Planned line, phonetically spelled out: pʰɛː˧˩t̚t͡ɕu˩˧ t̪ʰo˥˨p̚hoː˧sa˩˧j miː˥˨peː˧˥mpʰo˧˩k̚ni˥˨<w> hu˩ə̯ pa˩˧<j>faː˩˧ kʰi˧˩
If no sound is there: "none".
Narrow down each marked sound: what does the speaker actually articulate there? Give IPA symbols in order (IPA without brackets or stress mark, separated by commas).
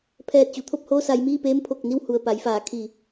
w, j